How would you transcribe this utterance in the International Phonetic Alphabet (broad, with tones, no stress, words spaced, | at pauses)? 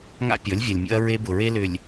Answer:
ŋa̰˦ pʲɔ˨˦lʲvʲɐ˨lʲmʲo̰˦ɐ̯ ɹe˦bʊ˨ɹe˦lʏ˨lʲ